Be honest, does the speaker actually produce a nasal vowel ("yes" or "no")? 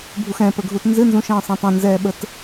yes